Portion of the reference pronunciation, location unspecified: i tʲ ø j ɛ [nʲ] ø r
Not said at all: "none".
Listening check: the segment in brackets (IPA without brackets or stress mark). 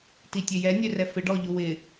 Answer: nʲ